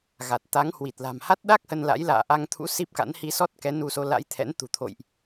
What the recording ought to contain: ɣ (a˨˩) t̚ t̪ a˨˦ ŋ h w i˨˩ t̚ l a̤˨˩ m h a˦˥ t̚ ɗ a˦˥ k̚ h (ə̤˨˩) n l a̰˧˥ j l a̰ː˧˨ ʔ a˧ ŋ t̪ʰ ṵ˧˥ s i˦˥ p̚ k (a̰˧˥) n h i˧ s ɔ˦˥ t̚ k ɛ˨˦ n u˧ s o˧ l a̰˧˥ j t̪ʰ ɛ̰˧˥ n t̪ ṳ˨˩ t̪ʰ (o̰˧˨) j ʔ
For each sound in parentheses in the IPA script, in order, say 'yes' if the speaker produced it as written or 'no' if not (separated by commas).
yes, no, yes, yes